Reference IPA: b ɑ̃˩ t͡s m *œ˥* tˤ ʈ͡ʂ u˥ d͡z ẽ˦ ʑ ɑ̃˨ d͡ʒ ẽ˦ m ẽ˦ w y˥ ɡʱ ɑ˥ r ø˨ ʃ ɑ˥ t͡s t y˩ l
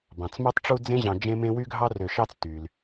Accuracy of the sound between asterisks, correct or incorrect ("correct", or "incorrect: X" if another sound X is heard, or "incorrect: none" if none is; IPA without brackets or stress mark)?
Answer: correct